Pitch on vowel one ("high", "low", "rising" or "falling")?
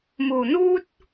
low